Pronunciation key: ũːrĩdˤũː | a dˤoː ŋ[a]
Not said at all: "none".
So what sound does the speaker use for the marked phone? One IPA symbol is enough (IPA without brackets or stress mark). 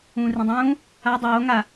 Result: a